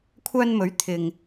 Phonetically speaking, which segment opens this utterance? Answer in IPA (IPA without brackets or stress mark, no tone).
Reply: kʷʰ